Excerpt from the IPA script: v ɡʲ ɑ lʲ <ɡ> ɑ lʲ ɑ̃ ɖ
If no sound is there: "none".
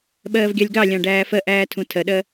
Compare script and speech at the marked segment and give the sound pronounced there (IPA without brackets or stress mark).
ɡ